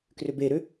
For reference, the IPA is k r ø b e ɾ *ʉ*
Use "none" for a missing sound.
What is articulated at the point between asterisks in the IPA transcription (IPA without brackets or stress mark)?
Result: ø